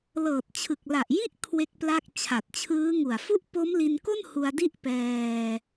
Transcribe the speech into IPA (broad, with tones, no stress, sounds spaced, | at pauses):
l ɤː˨˩ t̚ t͡ɕʰ ɯ˨˩ k̚ l a˨˩ ʔ j i˥˩ ʔ kʰ w e˥˩ k̚ p l a˥˩ k̚ t͡ɕʰ a˨˩ t̚ t͡ɕʰ ɯː˦˥ ŋ u˨˩ a̯ f u˥˩ ʔ p o˦˥ m l i˧ n k o˥˩ n h u˧ a̯ d i˥˩ ʔ p ɛː˧